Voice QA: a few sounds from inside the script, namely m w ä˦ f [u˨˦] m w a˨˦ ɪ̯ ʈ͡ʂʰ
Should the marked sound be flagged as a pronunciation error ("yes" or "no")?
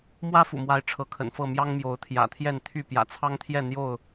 yes